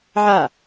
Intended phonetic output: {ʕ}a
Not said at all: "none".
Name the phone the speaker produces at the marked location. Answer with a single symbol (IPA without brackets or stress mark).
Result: ʕ